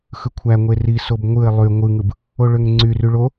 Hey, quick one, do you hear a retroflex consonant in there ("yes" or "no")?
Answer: yes